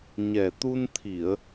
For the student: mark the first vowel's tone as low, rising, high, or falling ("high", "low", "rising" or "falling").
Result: low